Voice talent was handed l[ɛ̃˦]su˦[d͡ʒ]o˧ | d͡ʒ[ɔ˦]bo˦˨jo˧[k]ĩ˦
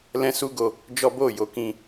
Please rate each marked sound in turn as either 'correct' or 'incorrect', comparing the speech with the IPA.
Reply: correct, incorrect: ɡ, correct, correct

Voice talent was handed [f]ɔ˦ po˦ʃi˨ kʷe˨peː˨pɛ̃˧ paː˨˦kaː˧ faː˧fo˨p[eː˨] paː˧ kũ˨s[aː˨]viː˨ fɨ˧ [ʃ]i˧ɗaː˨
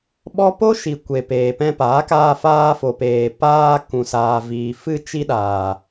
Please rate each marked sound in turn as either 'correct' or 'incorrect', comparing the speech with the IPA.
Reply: incorrect: ɓ, correct, correct, incorrect: t͡ʃ

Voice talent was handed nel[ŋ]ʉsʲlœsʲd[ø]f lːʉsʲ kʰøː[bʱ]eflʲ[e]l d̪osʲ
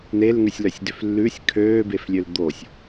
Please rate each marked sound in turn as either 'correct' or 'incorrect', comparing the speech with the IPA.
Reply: correct, correct, incorrect: b, incorrect: ø

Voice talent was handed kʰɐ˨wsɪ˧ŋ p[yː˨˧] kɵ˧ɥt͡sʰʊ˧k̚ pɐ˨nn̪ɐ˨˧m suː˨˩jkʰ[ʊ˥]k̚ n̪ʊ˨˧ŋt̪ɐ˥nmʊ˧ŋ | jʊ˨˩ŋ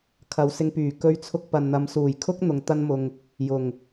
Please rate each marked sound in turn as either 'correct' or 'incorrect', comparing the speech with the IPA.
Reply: incorrect: yː˨˩, correct

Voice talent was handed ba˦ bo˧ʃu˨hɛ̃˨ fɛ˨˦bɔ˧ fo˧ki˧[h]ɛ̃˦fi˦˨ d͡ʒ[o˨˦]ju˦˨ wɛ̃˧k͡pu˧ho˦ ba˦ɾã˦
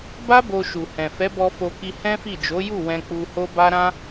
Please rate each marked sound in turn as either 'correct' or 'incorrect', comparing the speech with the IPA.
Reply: correct, correct

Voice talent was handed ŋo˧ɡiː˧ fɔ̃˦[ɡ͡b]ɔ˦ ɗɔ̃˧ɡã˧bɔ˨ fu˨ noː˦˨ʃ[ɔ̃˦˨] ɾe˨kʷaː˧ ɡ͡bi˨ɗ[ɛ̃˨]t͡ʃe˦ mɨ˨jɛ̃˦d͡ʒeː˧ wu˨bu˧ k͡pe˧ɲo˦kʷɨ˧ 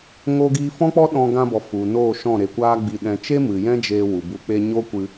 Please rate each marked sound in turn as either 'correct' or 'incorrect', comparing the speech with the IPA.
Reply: incorrect: k͡p, correct, correct

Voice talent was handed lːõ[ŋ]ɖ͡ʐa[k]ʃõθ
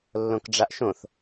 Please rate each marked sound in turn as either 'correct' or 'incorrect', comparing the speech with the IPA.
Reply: incorrect: k, incorrect: ʔ

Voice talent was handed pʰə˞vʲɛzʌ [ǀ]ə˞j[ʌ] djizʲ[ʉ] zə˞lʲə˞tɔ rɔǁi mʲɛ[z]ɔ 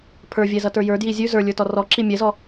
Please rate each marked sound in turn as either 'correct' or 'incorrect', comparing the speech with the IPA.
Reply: incorrect: t, incorrect: ə˞, correct, correct

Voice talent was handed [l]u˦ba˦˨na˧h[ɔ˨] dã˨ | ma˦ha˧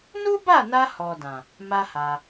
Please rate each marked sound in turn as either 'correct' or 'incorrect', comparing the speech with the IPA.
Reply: incorrect: n, correct

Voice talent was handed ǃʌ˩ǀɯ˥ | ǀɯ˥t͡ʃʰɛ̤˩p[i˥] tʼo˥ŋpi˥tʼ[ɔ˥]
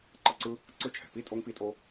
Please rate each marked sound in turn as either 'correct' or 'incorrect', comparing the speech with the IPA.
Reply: correct, incorrect: o˥

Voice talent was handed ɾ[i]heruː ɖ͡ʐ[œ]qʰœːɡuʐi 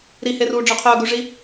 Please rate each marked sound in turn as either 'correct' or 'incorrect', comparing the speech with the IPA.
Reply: correct, correct

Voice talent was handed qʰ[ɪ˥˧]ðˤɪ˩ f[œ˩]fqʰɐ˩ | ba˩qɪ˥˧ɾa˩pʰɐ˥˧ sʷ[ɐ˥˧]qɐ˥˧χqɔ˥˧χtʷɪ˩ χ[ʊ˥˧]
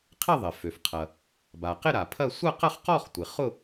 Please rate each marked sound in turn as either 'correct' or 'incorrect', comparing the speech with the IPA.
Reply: correct, incorrect: ø˩, correct, correct

